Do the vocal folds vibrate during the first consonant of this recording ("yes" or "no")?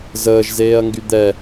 yes